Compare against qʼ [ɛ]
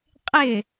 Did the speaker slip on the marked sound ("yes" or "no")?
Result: yes